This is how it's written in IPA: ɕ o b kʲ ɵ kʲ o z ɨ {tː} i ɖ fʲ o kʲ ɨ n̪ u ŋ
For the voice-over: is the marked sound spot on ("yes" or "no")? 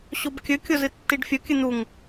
yes